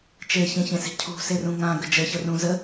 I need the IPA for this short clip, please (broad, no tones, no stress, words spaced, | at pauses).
t͡ʃeçẽçẽse̤ cʰṳserũ ŋãɡə d͡ʒəçərũ zə